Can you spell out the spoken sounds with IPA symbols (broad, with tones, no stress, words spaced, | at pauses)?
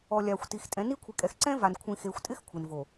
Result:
ɔ˨ lʲaː˨xʷti˨x tʼɛ̃˨˦ ni˦kʷʰi˨kʼɛ˨x ǀɛ̃˦va˨n kʷʰĩ˨xeː˨xʷtʼɪ˦x kʷʰe˨nvo˨